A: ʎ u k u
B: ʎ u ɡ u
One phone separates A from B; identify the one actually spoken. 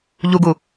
B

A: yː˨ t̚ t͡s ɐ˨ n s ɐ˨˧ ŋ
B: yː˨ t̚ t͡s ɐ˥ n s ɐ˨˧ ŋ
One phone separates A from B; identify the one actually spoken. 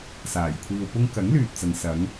A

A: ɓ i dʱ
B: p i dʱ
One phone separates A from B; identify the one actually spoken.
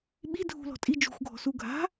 A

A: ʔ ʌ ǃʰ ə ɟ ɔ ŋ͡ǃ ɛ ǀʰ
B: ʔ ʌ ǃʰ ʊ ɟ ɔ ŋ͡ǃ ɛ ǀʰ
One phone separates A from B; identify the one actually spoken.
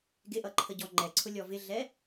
A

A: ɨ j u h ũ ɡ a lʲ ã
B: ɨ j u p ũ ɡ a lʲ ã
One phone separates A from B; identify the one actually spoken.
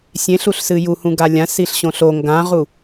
A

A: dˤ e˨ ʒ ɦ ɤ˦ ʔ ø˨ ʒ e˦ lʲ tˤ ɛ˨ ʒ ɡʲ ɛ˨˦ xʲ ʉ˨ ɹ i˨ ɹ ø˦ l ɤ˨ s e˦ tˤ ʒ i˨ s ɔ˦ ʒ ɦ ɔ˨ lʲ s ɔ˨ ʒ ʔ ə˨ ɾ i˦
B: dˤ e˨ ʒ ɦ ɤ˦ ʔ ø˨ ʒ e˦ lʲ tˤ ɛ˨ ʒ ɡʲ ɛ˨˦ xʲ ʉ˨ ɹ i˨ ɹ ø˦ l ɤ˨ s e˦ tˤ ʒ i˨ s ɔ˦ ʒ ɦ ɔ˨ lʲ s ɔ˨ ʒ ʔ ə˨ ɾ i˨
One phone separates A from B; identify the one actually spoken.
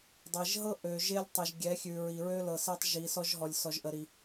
B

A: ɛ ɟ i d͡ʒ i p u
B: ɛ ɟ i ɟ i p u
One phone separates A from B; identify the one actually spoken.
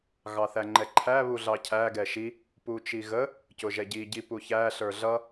B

